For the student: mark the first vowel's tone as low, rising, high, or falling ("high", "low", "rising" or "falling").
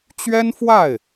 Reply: high